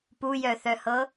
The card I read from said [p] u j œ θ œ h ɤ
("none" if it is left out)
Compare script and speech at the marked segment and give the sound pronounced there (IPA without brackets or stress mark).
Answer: p